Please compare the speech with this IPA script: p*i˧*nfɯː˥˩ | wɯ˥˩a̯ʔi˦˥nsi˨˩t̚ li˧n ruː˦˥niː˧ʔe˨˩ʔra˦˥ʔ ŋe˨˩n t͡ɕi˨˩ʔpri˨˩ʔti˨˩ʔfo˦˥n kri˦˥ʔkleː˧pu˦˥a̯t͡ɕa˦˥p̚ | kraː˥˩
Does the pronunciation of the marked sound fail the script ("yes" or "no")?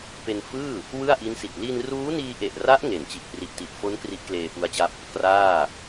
yes